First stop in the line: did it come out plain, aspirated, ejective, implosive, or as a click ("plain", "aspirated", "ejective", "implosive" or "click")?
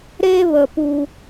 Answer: plain